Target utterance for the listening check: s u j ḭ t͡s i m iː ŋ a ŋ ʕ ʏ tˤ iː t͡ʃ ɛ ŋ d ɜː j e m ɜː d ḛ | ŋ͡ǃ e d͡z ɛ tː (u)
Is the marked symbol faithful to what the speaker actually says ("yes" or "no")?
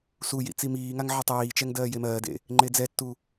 yes